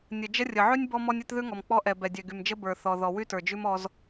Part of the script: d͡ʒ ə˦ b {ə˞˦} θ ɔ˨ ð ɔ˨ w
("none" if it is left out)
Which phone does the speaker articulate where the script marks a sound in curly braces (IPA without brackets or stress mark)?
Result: ə˞˨